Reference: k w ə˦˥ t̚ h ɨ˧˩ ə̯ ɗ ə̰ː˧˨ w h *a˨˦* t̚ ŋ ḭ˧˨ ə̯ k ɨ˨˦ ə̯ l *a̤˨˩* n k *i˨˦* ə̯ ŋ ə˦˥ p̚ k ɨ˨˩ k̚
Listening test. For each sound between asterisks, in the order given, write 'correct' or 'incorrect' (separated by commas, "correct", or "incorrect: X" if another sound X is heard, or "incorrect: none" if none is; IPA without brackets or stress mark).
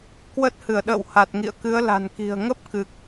incorrect: a˨˩, correct, incorrect: i̤˨˩